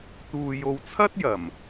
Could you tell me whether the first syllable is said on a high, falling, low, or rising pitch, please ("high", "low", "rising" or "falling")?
low